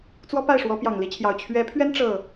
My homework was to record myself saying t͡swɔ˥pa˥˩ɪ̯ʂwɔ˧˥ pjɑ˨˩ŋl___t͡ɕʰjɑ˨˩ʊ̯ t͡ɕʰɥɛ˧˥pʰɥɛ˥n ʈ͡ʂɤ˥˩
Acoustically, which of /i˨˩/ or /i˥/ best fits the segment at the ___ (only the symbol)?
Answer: i˥